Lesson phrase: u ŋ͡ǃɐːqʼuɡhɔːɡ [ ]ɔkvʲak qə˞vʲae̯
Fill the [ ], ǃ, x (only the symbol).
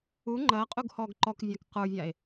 ǃ